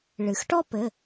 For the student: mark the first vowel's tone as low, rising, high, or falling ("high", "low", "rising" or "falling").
low